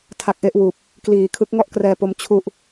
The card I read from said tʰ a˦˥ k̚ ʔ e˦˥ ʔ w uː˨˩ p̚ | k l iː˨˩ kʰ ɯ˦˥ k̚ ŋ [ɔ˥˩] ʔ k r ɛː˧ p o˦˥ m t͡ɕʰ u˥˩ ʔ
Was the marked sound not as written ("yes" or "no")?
no